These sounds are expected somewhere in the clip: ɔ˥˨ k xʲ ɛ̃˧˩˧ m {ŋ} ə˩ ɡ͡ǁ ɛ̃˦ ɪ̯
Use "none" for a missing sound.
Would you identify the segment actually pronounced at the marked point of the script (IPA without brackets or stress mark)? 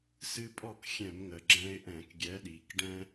ŋ